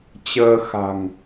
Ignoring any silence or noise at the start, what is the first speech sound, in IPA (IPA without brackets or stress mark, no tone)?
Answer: t͡ɕ